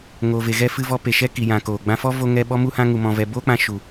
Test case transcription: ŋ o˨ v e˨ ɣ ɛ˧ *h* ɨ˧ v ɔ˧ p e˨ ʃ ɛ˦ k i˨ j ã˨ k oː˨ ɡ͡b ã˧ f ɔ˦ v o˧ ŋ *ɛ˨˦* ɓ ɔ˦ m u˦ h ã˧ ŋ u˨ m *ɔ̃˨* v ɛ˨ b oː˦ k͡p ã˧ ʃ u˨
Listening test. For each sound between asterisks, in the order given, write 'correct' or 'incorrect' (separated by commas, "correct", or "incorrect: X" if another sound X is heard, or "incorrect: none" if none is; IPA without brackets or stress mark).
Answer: incorrect: f, incorrect: ɛ˧, correct